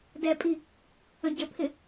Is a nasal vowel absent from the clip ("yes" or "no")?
no